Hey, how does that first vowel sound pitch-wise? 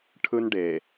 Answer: high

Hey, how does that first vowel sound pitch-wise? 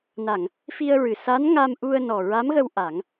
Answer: low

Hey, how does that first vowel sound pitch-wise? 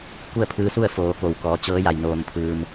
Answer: falling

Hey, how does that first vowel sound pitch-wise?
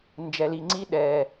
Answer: low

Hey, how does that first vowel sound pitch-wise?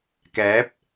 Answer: rising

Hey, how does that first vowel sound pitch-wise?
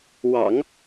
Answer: low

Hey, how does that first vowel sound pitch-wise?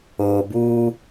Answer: low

